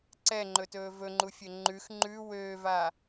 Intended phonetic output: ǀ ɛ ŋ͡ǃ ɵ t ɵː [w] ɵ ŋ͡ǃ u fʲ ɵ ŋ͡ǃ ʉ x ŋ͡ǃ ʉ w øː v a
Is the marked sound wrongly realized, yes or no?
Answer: yes